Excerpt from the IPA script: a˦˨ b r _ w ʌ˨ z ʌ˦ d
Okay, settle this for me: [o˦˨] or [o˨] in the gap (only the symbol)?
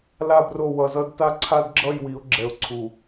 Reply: o˦˨